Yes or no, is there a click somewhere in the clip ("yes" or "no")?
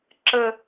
yes